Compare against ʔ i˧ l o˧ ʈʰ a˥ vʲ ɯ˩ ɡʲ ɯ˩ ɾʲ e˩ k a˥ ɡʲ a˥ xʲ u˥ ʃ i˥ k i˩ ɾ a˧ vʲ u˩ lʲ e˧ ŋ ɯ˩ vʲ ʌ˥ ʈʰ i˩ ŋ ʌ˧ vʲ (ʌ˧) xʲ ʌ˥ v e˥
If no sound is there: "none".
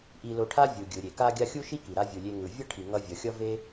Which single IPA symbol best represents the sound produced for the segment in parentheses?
ʌ˩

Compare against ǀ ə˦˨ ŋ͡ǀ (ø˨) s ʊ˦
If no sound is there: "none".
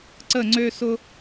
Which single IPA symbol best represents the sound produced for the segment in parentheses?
ø˦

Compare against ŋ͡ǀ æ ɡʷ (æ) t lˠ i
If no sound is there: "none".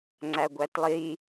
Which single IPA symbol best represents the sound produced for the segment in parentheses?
æ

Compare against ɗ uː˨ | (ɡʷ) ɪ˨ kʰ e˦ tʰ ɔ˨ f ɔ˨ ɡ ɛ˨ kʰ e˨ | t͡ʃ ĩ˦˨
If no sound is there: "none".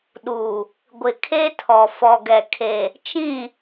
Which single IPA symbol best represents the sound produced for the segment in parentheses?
ɡʷ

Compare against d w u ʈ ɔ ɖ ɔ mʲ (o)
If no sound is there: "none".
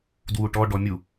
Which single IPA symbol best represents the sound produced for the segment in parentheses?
u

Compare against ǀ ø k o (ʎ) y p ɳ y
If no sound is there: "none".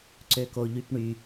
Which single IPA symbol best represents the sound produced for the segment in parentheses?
ʎ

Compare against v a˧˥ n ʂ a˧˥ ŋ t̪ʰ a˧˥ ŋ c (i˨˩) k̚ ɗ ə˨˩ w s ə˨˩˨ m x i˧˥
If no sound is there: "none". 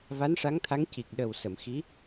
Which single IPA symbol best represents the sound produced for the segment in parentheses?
i˨˩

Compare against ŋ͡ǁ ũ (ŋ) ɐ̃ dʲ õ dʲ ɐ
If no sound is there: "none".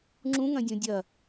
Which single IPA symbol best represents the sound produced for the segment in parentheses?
ŋ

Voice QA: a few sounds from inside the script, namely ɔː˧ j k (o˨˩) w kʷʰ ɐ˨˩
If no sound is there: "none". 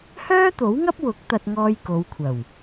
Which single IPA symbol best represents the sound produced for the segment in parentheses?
o˨˧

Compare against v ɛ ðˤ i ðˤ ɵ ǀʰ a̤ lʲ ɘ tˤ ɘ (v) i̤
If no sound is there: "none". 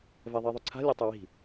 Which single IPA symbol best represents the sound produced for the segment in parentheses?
w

